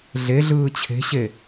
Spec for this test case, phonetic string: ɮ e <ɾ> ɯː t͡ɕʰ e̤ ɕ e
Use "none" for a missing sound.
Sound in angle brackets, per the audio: ɮ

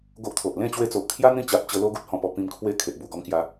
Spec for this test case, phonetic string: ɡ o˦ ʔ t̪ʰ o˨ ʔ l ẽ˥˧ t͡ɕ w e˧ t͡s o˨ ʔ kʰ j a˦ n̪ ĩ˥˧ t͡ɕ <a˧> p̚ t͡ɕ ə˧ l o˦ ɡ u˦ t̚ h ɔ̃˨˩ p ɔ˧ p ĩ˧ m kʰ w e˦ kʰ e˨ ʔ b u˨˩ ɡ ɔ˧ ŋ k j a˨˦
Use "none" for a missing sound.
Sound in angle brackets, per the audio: a˨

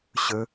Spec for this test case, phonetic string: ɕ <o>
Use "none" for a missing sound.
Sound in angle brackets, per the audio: ɵ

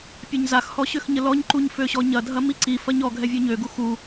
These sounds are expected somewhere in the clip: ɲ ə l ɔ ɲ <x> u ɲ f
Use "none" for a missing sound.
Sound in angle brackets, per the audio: ǃ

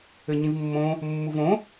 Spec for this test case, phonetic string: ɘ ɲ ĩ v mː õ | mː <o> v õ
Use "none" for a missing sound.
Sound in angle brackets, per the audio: u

